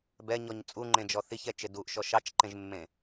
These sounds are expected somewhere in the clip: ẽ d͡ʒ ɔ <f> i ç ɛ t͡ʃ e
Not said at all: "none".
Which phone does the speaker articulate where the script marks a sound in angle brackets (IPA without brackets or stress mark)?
θ